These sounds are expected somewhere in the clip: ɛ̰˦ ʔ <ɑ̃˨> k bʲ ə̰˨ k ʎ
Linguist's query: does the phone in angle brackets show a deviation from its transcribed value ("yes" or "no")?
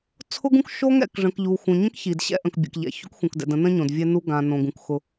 yes